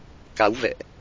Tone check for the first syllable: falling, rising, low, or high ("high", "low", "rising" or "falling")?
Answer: rising